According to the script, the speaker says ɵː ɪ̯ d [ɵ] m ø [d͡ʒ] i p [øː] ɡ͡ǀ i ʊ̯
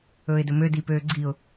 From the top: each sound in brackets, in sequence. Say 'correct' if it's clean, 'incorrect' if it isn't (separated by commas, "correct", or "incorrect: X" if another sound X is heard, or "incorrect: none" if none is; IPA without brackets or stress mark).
correct, incorrect: d, correct